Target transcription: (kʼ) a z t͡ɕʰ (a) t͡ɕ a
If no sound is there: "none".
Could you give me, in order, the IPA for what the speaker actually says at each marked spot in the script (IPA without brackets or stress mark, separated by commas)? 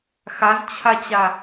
x, a